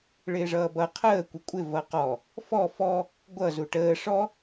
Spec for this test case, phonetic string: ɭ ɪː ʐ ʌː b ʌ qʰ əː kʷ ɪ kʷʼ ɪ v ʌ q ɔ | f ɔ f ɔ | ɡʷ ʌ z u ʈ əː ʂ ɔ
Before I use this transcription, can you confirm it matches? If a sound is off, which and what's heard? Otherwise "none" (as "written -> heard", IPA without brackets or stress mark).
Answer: none